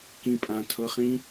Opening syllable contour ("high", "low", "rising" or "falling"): low